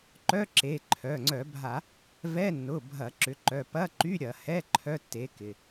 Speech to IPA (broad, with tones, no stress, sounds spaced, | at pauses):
ǃ œ˧˥˧ ǁ e˩˧˩ ǃʰ œ˩˧˩ ŋ͡ǀ œ˧˩˧ bʱ a˧˩˧ | v ɛ˧˥˧ nː ʊ˩˧˩ bʱ ɐ˧˩˧ ǁ ʏ˩˥ ǃ œ˩˧˩ p ɐ˧˥˧ ǃ y˧˥˧ ɾʲ ɐ˧˩˧ h ɛ˧˥˧ ǃʰ œ˧˥˧ tː e˩˥ k ɪ˩˧˩